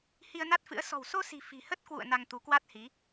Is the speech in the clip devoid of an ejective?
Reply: yes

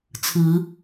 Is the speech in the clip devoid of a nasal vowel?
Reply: yes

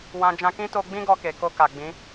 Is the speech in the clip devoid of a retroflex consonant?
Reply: yes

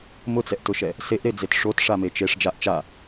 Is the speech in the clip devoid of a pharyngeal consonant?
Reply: yes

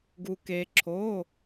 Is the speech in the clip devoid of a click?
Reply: no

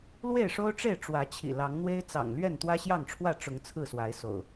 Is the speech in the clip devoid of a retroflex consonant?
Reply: no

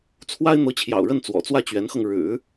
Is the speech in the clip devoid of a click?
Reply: yes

